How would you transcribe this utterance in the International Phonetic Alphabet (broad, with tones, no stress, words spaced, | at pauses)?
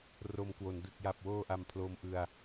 ro˧m kwo˩˦n dɯ˨˩k̚ja˨˩p̚woː˧ ʔa˧mpʰloː˧mʔɯ˧a̯